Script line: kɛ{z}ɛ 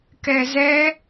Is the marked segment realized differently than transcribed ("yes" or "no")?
no